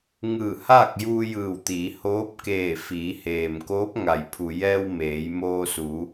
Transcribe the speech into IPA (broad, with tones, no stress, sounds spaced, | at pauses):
ŋ ɯː˧˩ h aː˥˨ k̚ j uː˧ j ɯː˧˩ w t̪ iː˩˧ h oː˧˥ p̚ k eː˧˩ f iː˩˧ h eː˩ m k oː˧˥ p̚ ŋ a˩ j pʰ u˩ j ɛː˧ w m eː˩˧ j m oː˧ s u˩˧